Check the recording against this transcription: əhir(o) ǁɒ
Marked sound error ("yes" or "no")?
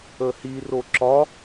no